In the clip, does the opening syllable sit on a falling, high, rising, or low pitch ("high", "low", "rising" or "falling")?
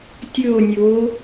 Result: falling